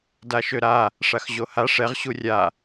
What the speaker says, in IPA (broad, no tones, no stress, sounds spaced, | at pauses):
d a ʃ ø ɾ a | ʂ a x ʑ o h a ʂ ɛ ʁ ɕ u rʲ a